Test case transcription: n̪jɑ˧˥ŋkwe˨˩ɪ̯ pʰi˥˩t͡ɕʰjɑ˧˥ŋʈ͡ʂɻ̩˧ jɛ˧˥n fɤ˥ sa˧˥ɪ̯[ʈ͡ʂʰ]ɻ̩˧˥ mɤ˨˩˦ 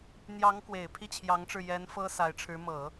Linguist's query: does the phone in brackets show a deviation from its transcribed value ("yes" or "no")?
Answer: no